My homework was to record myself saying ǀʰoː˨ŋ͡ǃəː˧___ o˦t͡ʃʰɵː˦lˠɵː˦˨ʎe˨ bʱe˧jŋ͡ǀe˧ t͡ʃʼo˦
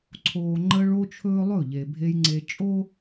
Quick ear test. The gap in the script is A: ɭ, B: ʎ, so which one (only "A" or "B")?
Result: A